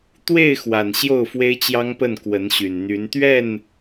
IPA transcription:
t̪we˥˨ɪ̯xwa˨˩n ɕjo˥˨ʊ̯fwe˦ɪ̯t͡ɕjɑ˦ŋpə˥˨n kwə˨˦nɕy˨˩nn̪y˨˦n t̪ɥɛ˥˨n

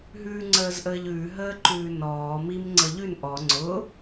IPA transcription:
ɦʉːŋ͡ǀəːzʔəːʎʉː ɦəːǃʉːnɔː mim ŋ͡ǀɤʎʉn ʔɔ ŋ͡ǀʊ

